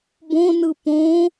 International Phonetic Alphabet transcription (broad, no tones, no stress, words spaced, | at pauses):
bõnɯ põ